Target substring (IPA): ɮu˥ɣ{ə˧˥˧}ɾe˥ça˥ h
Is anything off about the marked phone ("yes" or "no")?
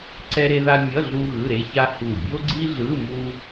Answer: yes